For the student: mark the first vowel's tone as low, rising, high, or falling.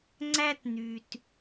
high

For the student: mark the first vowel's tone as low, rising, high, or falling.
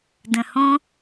low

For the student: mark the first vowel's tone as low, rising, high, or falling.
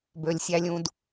low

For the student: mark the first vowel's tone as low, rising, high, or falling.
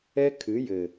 high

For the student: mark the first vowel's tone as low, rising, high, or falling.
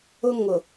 high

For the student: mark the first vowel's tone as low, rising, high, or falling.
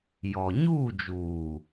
low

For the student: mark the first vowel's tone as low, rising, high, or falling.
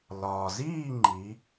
low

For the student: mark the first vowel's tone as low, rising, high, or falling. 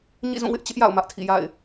falling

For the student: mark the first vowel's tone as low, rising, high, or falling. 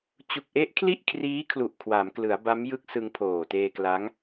low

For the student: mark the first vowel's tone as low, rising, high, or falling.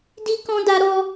high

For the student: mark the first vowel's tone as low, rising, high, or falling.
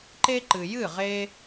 high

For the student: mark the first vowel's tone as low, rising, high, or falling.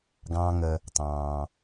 low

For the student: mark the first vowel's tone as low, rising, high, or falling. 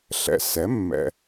low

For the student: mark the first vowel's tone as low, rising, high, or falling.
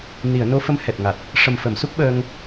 low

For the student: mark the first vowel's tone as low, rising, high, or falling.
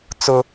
high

